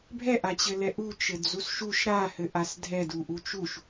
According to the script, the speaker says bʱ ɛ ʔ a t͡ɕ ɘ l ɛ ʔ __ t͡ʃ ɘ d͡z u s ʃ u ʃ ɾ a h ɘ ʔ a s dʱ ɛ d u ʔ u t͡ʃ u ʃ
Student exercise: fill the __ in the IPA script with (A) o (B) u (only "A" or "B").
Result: B